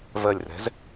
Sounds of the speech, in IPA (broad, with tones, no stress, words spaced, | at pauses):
vɜ˧˩lʲrɛ̤˨˥z